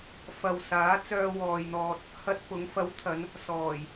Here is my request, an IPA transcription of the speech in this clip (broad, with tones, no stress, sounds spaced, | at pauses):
f ɐ˨ w s aː˨˥ t͡s œː˧ w ɔː˨ j n̪ ɔː˧ t̚ | h ɐ˧ t̚ p ʊ˨˥ ŋ f ɐ˨˥ w t̪ʰ ɐ˨˧ n | s ɔː˨˩ j